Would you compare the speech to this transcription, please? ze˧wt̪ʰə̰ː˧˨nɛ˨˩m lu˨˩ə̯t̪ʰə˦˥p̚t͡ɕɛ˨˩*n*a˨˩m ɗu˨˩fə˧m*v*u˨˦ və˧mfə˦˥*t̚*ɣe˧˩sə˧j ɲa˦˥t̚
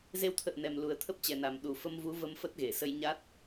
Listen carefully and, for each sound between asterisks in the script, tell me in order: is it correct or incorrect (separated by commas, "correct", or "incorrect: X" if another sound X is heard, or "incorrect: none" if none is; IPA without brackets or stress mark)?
correct, correct, correct